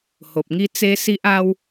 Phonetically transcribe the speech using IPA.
h o˨ p̚ ŋ i˦ t͡s e˦ s i˦ ʔ a˦ w

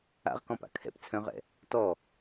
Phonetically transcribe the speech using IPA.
a̰ ʁ k ɔ̃ p a̰ kʰ ɛ̰ p t͡sʰ œ̃ ʁ ɛ̰ | t ɔ

